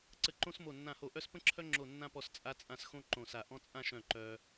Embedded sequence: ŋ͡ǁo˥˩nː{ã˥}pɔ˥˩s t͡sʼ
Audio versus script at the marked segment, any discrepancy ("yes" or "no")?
no